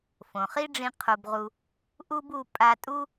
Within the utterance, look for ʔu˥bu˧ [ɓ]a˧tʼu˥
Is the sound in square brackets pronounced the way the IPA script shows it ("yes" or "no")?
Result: no